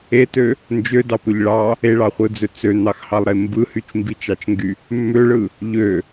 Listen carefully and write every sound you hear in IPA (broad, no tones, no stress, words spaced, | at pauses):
etø | nd͡ʒødɑpøʎ ɭɑ | eɭɑχʷɯd͡zø t͡søn̪ɑxhɑlˠɾe mbɯ hyt͡ʃmbit͡ʃɑt͡ʃŋɡy | mːøɭɯ | ʎø